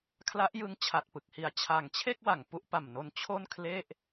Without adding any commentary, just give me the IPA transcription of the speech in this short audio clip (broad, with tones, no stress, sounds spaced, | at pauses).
kʰ l a˦˥ ʔ j ɯ˦˥ ŋ t͡ɕʰ a˨˩ t̚ p ɯ˨˩ k̚ h i˨˩ a̯ t͡ɕʰ a˨˩ ŋ t͡ɕʰ e˥˩ k̚ w a˨˩ ŋ p u˦˥ ʔ p a˨˩ m n o˧ n t͡ɕʰ o˥˩ n kʰ l e˥˩ ʔ